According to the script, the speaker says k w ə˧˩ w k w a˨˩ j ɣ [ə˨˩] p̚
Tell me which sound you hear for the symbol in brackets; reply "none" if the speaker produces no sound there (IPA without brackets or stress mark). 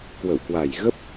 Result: ə˦˥